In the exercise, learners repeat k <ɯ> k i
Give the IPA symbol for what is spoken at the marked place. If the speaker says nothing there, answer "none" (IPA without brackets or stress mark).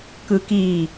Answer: ɯ